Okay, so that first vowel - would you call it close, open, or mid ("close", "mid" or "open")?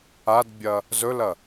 open